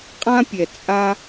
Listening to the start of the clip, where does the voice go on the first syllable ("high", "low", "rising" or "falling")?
high